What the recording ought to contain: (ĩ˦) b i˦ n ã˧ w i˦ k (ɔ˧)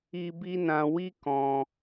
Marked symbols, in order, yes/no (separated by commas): no, no